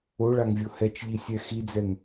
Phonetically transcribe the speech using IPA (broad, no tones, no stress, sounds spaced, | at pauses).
o ɭ a ŋ vʲ o h ɛ t͡ʃ ʎ i sʲ ɛ x i d͡z ɛ ŋ